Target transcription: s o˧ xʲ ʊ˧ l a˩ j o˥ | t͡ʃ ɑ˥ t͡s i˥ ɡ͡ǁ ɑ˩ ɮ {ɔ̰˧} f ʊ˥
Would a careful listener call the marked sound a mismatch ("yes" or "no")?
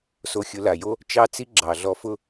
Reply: yes